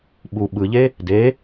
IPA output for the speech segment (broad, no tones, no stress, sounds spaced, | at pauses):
ɓ u ɓ ɯ ʎ e | d e